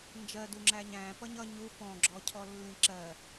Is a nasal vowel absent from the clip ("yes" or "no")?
no